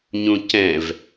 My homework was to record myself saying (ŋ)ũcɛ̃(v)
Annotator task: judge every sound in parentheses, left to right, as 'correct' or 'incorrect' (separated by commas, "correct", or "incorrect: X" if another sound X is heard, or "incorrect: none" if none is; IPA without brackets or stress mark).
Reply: incorrect: ɲ, correct